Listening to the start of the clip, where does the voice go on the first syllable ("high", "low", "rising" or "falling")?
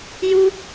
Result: high